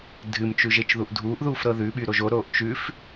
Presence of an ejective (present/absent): absent